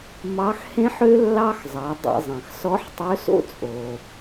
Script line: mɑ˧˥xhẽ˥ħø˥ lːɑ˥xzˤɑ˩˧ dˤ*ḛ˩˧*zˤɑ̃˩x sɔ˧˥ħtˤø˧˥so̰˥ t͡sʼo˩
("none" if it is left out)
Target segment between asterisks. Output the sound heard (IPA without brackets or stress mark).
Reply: ḛ˧